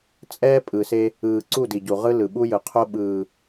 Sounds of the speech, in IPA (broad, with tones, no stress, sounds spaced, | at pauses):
t͡sʼ ɛː˦ pʼ ɯ˨ s e˦ | ɯː˨ ǀ u˦˨ d i˨ ɟ u˨ ʁ ɯ˦ l ɯ˨ ɓ u˦ j ɯ˨ qʰ o˦ ɓ ɯː˨